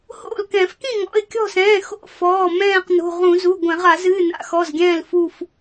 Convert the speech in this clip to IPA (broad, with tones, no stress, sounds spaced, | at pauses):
h o̰˥˨ l k ɛ̃˧˩˧ f k ĩ˥˨ ŋ ɔ̰˩˧˩ ɪ̯ kʲ ɔ̤˥˨ s ɛ̃ː˩˧˩ x o̰˥˨ f ɔː˩˧˩ m ɛ̃ː˥˨ q n o̤˩˧˩ ʁ ũ˧˩˧ z u˩˧˩ ɡʷ ɛ̃˧˩˧ ʁ a˧˩˧ z ɨ˩˧˩ n a̰˧˩˧ x ɔ˩˧˩ z ɡʲ ɛ̃ː˥˨ l f u˥˨ f